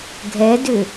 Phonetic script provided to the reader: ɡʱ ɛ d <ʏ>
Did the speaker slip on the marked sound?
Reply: no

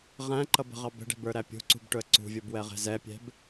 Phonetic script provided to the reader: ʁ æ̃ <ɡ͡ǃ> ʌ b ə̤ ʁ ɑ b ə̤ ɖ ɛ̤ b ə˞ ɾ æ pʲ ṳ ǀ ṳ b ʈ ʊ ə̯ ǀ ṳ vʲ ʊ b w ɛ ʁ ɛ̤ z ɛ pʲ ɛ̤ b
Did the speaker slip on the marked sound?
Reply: yes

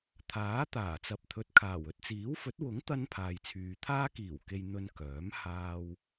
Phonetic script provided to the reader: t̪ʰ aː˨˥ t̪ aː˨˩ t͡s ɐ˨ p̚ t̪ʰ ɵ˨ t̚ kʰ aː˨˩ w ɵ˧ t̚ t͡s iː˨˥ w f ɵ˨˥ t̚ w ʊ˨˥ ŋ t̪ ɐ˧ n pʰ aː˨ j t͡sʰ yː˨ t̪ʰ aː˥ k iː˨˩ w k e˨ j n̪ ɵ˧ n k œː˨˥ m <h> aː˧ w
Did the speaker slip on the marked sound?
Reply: no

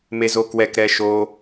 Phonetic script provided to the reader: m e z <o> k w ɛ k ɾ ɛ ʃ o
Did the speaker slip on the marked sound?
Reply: no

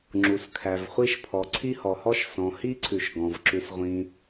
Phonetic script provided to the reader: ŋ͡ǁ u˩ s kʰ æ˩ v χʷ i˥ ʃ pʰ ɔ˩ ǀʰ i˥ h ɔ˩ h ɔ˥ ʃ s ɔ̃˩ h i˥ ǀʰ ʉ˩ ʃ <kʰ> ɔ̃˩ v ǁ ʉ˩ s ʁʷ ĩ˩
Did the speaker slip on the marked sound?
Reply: yes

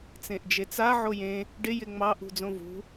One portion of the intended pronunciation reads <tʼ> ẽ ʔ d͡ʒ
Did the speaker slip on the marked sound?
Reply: yes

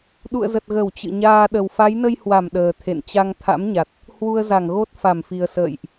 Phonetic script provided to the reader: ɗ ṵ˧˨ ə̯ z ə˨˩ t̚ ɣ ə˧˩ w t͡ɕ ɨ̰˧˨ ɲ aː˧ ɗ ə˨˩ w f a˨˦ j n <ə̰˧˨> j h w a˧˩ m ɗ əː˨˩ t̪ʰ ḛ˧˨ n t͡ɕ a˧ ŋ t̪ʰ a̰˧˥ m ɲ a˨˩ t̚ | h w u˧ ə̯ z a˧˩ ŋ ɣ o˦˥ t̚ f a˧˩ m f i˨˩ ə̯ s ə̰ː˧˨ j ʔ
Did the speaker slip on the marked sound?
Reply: yes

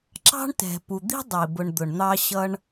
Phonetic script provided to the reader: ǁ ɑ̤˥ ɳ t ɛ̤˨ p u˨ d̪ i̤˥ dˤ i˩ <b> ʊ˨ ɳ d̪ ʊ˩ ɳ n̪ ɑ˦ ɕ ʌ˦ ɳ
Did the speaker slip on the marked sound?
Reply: no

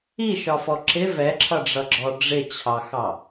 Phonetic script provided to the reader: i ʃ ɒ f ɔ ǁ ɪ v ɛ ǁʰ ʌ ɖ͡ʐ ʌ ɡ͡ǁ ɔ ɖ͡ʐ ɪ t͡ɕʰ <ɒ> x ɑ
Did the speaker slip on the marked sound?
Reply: yes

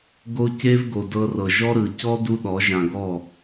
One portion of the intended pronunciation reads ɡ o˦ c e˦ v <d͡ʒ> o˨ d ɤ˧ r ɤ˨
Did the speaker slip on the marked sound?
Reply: yes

